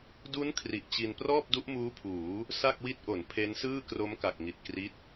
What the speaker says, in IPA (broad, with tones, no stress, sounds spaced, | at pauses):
d u˦˥ n kʰ r i˨˩ ʔ t͡ɕ i˧ n p r ɔː˥˩ p̚ d u˦˥ ʔ m uː˦˥ pʰ uː˩˦ | s a˥˩ k̚ w i˦˥ t̚ ʔ o˩˦ n pʰ e˦˥ n s ɯː˥˩ k r o˦˥ m k a˨˩ k̚ ŋ i˨˩ t̚ k r i˦˥ t̚